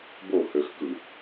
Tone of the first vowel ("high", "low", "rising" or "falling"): falling